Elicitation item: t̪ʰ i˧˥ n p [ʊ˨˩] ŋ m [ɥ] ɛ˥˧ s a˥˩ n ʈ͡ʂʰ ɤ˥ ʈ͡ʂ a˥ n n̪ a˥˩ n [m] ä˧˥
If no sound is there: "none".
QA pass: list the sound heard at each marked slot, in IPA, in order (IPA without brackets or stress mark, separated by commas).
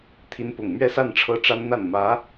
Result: ʊ˨˩, ɥ, m